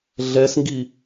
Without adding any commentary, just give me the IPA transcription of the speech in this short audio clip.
ɮ ɛ s ŋ ɡ i

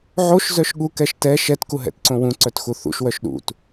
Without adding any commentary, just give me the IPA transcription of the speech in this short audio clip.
ʕ o ʃ z œ ʃ ɠ u k ɛ ʃ t ɛ ʃ ɛ t k u ɦ ɛ̰ t ǀ õ w ũ ǀ œ t x u θ ṵ ʃ w œ ʃ ɗ ṵ t

